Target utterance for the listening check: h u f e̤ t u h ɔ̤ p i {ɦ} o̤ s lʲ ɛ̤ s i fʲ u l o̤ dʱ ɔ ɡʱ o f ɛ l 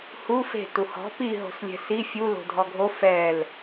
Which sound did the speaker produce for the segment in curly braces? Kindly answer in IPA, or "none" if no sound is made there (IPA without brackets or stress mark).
ɦ